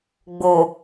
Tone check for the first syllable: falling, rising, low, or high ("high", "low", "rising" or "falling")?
low